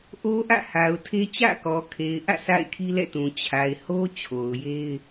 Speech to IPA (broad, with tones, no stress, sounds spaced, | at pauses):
ʔ o˦ ʔ ä̰˦˨ h a˨ ʊ̯ tʰ e˦ t͡ɕ ä̰˦˨ k ɔ˨ kʰ e˨ ɪ̯ ʔ ä̰˦˨ sʰ a̰˦˨ ɪ̯ kʰ i˦ l ɛ̰˦˨ t ũ˨ t͡ɕʰ a˨ ɪ̯ h o˦ t͡ɕʰ o˨ ʊ̯ j e˦ ɪ̯